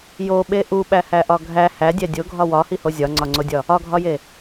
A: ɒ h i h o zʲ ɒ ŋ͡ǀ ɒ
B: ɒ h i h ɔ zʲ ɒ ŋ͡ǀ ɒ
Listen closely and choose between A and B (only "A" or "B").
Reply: A